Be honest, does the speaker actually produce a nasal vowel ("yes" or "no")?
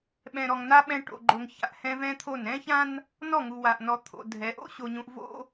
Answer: yes